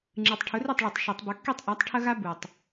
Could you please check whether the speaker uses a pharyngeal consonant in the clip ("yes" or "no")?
no